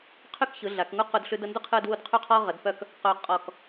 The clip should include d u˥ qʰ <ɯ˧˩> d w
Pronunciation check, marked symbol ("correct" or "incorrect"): incorrect